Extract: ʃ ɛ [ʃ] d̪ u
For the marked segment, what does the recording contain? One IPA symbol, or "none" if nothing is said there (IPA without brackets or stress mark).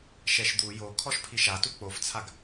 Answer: ʃ